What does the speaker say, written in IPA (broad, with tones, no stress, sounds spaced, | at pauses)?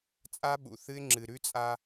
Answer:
t͡sʼ a˦ ɓ ṵ˨ θ ɨ˦ ɪ̯ ŋ͡ǁ ɨ˨ ɾ ʉ˦ t͡sʼ a˦